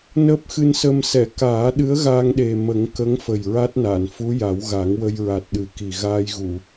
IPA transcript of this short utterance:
n əː˦˥ p̚ x ɨ˧ n s ə˧ m s ɛ˨˩˨ k aː˨˩˦ ɗ ɨ˧˥ ə̯ ɣ a˧ ŋ ɗ e˨˩ m ə˨˩˦ ŋ k ə˧˥ ŋ f ə˨˩ j ɹ a˦˥ t̚ n a˨˩˨ n f u˧˥ j a˨˩˦ w ɣ a˨˩˦ ŋ w ə˧ j ɹ a˨˩ t̚ ɗ ɨ˨˩ k i˨˩ ɣ aː˧ j ɣ u˨˩˨

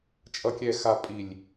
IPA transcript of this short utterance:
t͡ʃʼ ʌ˨ kʲ ɛ˨ x a˨ pʼ i˨ lʲ

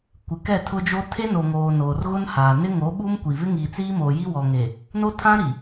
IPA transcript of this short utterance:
kʷ ɪ˨ k ɛ˦˨ tʰ ʊ˦ d͡ʒ o˦ tʰ e˦ n o˨ ŋ oː˨ n oː˨ r ɣ ʊ˦ n h aː˨ n ɪ˦ ŋ o˨˦ ɓ u˦ m kʷ i˨ v ɪ˦ ŋ iː˨ t͡s iː˦ m oː˨ j i˦ w ɔ˨ ŋ e˨ | n o˦ tʰ ã˦ ɾ i˨

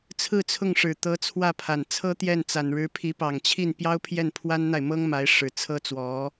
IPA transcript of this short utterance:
t͡sʰ ɹ̩˥˧ t͡sʰ ʊ˥˩ ŋ ʂ ɻ̩˨˩ t̪ ɤ˧˥ t͡sʰ w ä˥˩ pʰ a˨˩ n t͡sʰ ɤ˥ t̪ j ɛ˥˩ n t͡s a˨˩ n ɻ ɻ̩˧˥ pʰ i˧˥ p ɑ˨˩ ŋ t͡ɕʰ i˥˩ n p j ɑ˥ ʊ̯ pʰ j ɛ˥˩ n pʰ w a˥ n n̪ a˨ ɪ̯ m ɤ˥ ŋ m a˧˥ ɪ̯ ʂ ɻ̩˨˩ t͡sʰ ɤ˥ t͡s w ɔ˧˥

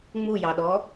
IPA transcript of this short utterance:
ŋ͡m u j ɑ ɗ ɔ

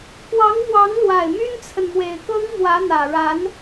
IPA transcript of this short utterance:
k w ɑ˧˥ ŋ m w ɑ˧˥ ŋ l w a˨˩ ɪ̯ m y˥ n t͡sʰ ə˨ n m w e˨˩ ɪ̯ k ɤ˥ ŋ m w ä˧˥ n̪ ä˨˩ ɻ a˧˥ n

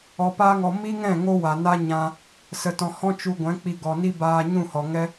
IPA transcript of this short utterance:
ɔ˧ p aː˦ ŋ ɔ˧ m i˦ ŋ ɛ̃˦˨ ŋ o˦ w a˨ n a˦ ɲ ã˧ | s ə˧ t ɔ̃˧ h ɔ̃˦ t͡ʃ u˧ ɡʷ ɛ̃˨˦ k͡p i˧ ɡ ɔ˨ n i˦ b aː˧ ɲ ũ˦˨ h ɔ˨ ŋ ɛ˦

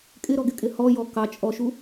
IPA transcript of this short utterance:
kʼ ɪ ɾ ɔ ɡ ɪ kʼ ɪ h ɔ j ɔ k ɑ t͡ʃʼ ɔ ʃ u

